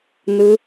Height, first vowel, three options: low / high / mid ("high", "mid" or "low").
high